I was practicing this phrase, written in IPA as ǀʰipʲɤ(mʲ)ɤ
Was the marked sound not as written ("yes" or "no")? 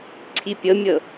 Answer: no